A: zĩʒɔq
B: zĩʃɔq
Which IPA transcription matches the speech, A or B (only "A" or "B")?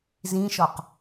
B